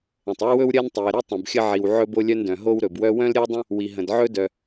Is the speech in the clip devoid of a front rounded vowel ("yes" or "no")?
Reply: no